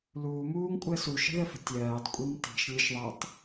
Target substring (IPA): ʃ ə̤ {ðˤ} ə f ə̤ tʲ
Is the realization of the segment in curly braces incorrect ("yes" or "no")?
yes